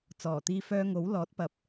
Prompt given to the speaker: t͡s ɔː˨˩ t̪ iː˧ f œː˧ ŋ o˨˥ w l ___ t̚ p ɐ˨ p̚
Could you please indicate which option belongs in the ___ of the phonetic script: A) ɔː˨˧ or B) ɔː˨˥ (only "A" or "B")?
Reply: B